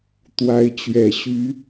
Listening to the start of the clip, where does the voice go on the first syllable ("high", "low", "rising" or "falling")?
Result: rising